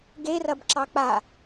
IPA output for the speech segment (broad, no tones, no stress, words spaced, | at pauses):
ɡerɐbǁɑ k͡pa